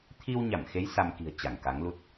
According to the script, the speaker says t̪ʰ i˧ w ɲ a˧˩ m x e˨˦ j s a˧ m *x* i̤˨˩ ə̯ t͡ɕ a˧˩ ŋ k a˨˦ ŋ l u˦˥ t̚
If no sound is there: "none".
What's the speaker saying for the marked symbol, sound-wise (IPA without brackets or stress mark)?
k